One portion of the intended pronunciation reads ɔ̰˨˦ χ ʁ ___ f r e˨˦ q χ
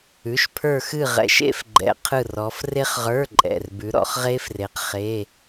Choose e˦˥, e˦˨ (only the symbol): e˦˥